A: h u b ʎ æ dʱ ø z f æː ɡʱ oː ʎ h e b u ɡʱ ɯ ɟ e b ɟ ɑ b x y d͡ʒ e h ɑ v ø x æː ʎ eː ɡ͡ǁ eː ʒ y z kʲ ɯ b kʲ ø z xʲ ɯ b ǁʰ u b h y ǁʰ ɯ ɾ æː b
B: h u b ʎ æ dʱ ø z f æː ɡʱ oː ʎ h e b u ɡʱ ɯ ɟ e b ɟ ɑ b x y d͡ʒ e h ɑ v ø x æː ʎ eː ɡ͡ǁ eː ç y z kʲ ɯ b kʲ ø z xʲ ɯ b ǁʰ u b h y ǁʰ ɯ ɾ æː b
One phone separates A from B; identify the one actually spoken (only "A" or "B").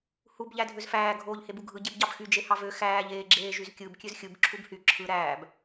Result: A